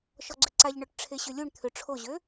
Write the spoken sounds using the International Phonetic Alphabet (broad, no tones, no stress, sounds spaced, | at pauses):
ʃ ɔ ɡ͡ǀ ʏ ǀ a ʎ ɳ œ ʈ ʈ͡ʂʰ e ɕ ʏ lʲ u ɳ t̪ʰ ʏ ʈ͡ʂʰ o ʑ ø